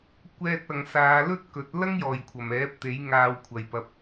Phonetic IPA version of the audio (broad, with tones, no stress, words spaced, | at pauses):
kʷɛː˧t̚ɐ˨ŋsaː˨˧ lɵ˥t̚kɵ˨˥t̚ lɐ˥ŋjɔː˨˩jkʷʰɐ˨˩m ɛː˨˥p̚t̪e˨˥j ŋaː˧wkʷʰɐ˨jpɐ˧p̚